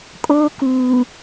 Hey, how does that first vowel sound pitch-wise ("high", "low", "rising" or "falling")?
high